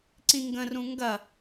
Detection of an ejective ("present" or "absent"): absent